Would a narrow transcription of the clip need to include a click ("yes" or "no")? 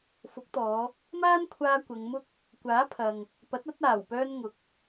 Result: no